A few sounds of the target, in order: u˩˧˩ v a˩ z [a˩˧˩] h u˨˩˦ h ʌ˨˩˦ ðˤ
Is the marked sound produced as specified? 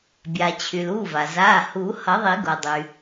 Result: yes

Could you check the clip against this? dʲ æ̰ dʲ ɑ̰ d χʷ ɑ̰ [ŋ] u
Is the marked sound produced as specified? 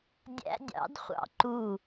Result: no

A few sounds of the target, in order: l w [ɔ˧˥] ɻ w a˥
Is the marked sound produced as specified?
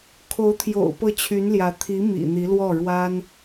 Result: no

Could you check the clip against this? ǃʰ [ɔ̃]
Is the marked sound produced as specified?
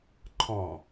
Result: yes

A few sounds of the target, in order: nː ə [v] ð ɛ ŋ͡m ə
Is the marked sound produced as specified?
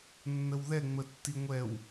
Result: no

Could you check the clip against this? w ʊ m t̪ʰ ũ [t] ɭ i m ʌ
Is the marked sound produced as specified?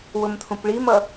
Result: no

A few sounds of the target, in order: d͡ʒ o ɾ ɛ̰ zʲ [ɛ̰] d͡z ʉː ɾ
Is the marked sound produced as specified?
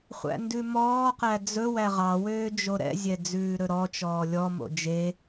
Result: no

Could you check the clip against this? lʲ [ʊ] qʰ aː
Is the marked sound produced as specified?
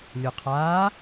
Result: yes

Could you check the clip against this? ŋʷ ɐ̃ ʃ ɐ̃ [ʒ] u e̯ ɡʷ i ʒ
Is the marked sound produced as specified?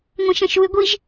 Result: no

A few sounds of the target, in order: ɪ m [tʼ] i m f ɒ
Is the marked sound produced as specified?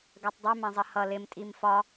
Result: yes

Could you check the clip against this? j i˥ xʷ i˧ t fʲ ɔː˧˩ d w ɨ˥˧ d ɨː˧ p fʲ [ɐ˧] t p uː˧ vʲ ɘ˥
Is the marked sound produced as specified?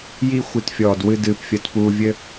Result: yes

